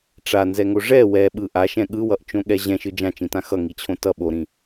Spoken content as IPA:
ʈ͡ʂ a n z ɛ ŋ o ʐ ɛ w ɛ ɓ ɯ ʔ a ʃ ɛ̃ ɠ ɯ w ʌ ʔ t͡ʃ õ ɠ ɛ ʑ ɛ̃ ʃ ɯ d͡ʒ ã t͡ʃ ĩ t ã x ʌ ŋ i t͡ɕʰ õ t ʌ ɓ o ɾ ĩ

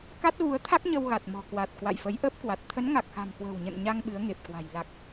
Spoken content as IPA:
k a˦˥ t̚ ɣ u˨˦ ə̯ t̪ʰ a˦˥ k̚ ɲ ə˧ w ɣ a˨˩ t̚ m ɔ̤˨˩ k w a˨˩ t̚ k w a̰˧˨ j f ə˨˦ j ʔ əː˦˥ p̚ k w a˨˩ t̚ t̪ʰ ə˨˦ n ŋ a˨˩ k̚ x a̤˨˩ m k w ə̤˨˩ w ɲ ə̰˧˨ n ɲ a˧ ŋ ɓ ɨ˨˦ ə̯ ŋ e˨˩ p̚ k w a̤˨˩ j l a˨˩ k̚

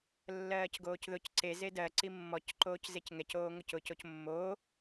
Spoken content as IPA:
lː ɜː c ɡ oː c ð ʊ c ǀ e z e d ɜ ǀ i mː ɔ c ǃ oː c z e c ŋ ɛ c oː ŋ ʊ c ʊ c o c mː oː

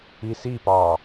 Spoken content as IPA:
i s i p ɑ

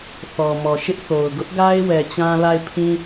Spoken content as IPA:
θ ɔ˨ m ɔ˨ ʃ ɪ˦ ʔ θ o˨ ʊ̯ ɡ ʊ˦ ʔ ɡ a˦ ɪ̯ w ɛ˨ t͡ɕ ã˦ l a˦˨ ɪ̯ pʰ ĩ˦

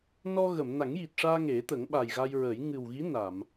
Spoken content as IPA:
n ɔ˧ ɣ ə˨˩˨ m n a˨˩˦ ŋ j i˨˩ t̚ ʂ aː˧ ŋ e˨˩˦ t̪ ə˨˩˦ ŋ ɓ a˨˩ j ɣ a˧ j ɹ ə˨˩˦ j ŋ ɨ˨˩ w ɣ i˧˥ n a˨˩˨ m

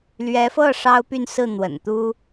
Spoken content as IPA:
l ɥ ɛ˧˥ f ɤ˥˩ ʂ ɑ˥ ʊ̯ p y˥˧ n s ɹ̩˥˩ n̪ w ə̰˨˩ n t̪ u˥

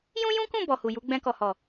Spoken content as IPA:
j ũ˦ j ũ˦ k ũ˦˨ b ɔ˨ h u˨ j u˨˦ ɡ͡b ɛ̃˧ k ɔ˨ h ɔ˨

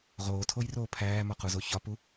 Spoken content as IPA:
ʁ oː tʰ o j r oː pʰ æː m ɒ q u z o ç ɒ p u

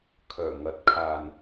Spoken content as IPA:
kʰ œː˨˩ ŋ ɐ˨˥ t̚ kʰ aː˨ n

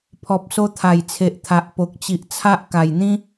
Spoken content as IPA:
pʰ ɔ˨ p̚ s o˧ t̪ʰ a˨˩ j t͡sʰ e˨ ʔ t̪ʰ a˨ ʔ p o˨ k̚ t͡ɕ i˨ ʔ t͡sʰ a˦ ʔ k a˨˩ j n̪ ĩ˦

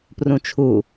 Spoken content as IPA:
p r ũ t͡ʃʰ u

